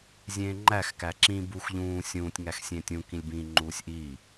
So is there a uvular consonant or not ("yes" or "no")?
no